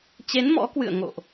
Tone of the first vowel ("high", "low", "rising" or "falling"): rising